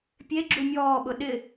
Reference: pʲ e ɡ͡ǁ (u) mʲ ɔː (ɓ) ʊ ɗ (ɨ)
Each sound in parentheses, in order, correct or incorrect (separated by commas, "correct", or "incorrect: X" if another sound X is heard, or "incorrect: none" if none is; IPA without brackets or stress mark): correct, correct, incorrect: ɪ